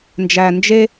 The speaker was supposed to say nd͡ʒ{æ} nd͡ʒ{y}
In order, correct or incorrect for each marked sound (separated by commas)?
correct, incorrect